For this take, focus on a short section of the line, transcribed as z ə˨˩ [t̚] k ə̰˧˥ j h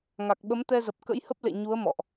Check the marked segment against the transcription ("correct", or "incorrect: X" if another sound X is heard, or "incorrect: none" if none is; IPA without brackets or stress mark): incorrect: p̚